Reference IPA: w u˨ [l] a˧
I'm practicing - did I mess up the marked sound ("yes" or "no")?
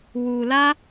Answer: no